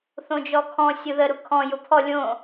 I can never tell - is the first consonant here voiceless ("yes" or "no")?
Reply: yes